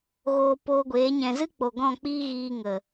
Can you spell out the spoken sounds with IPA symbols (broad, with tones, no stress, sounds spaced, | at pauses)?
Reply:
ɣ oː˨ p oː˧ ɡʷ eː˨˦ ɲ ɛ̃˨ z ɨ˦ k͡p o˨ ɡ ɔ̃˦˨ k͡p iː˦ ɣ iː˧ ŋ ə˨